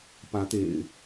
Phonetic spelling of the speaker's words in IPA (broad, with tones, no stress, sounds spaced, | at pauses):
p ä˨˦ t̪ ḛ˨˩ ɪ̯